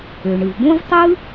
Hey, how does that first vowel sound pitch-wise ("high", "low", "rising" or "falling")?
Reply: low